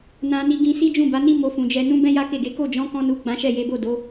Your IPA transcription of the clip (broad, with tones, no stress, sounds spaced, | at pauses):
n ã˧ n i˧ ɡ ĩ˧ s i˦ d͡ʒ ũ˦˨ b a˨˦ n i˦ m o˧ f ũ˨ d͡ʒ ɛ˧ n ũ˦ b ɛ̃˦ j a˦ k e˦˨ ɡ e˨˦ k o˦˨ d͡ʒ ɔ̃˨˦ k ɔ̃˧ n u˨ ɡ͡b ã˨˦ ʃ ɛ˦˨ j e˨˦ b o˦˨ d o˨˦